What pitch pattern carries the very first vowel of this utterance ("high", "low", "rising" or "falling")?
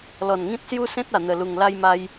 low